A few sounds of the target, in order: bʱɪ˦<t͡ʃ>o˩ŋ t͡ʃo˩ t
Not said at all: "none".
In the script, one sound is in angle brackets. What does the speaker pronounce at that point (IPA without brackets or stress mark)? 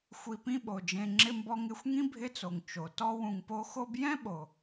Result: t͡s